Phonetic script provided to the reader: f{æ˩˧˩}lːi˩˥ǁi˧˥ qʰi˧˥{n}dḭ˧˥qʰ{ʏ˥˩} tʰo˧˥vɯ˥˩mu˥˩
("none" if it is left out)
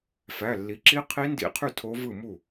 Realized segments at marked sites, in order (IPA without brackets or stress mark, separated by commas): æ˩˧˩, n, y˥˩